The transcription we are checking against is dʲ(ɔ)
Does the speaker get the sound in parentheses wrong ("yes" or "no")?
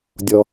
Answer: no